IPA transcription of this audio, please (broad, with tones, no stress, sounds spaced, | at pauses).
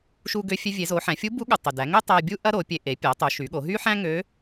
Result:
ʃ u˧ ɡ ø˧ fʲ ø˧ vʲ e˩˧ z o˩˧ ħ æ̃˩˧ fʲ u˧˥ b u˧˥ ɠ u˩ tˤ y˩ d æ˩˧ ŋ ø˥ tˤ æ˧ bʲ u˥ ʔ ɐ˥ ɾ o˩˧ pʲ e˧ ʔ e˩˧ pʲ æ˩˧ tˤ u˩˧ ʃ y˩˧ ɠ o˩˧ ɦ y˥ ħ æ̃˥ ŋ ø˧˥